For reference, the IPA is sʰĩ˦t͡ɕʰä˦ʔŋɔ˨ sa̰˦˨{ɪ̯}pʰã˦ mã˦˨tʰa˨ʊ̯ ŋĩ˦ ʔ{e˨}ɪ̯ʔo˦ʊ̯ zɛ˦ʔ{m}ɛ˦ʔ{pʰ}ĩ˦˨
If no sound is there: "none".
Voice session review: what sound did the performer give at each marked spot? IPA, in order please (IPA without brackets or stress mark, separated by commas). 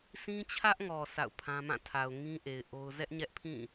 ʊ̯, e˨, ɲ, pʰ